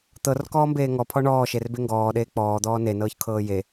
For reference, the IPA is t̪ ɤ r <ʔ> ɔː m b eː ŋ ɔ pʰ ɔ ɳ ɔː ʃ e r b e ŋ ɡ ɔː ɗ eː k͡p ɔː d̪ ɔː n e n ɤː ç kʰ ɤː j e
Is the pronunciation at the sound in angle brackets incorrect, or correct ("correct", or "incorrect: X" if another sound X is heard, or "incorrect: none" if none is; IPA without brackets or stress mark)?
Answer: incorrect: k